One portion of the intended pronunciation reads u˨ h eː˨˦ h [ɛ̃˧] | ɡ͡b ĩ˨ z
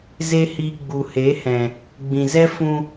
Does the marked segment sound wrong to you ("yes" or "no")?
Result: yes